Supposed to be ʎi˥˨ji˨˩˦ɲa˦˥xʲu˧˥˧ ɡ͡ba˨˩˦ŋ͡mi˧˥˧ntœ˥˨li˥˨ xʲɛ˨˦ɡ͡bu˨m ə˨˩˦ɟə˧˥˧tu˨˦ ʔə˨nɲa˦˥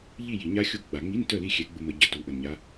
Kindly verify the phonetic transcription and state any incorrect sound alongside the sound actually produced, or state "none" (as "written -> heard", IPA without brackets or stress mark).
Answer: none